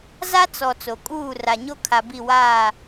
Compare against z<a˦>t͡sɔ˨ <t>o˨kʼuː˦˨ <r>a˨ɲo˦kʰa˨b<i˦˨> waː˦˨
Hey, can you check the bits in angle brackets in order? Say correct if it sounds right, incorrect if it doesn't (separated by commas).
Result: correct, incorrect, correct, correct